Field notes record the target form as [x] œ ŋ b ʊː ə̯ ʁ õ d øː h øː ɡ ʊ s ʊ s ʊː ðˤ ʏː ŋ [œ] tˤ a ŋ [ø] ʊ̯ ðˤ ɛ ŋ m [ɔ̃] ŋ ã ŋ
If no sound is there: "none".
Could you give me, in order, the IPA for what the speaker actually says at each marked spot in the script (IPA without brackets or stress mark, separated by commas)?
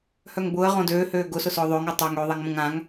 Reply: h, œ, ø, õ